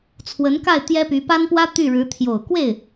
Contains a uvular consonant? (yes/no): no